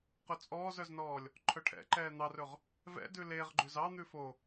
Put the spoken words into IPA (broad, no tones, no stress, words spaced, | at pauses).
qɵt͡sʼɔːzœznɔːlʲ | ǃʰœʈʰɛ̰ǃɛː n̪ɑrɵʁ | vɛ̰ dʉleʁ ɡ͡ǃʉzɑ n̪ʉfo